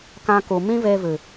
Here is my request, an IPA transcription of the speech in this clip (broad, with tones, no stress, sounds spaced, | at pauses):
k ã˧ k u˨ m ĩ˦ v eː˧ v ɨ˨